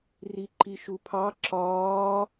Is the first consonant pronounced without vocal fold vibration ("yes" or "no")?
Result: no